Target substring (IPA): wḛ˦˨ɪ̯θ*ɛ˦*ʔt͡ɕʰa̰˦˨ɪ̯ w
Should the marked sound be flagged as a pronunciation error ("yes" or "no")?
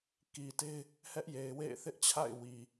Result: yes